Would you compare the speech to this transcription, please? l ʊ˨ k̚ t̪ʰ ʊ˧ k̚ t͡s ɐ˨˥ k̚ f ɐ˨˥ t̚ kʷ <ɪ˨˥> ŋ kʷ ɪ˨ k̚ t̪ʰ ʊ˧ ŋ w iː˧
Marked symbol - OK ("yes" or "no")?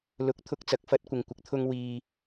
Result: no